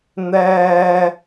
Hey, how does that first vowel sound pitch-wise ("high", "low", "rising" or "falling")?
low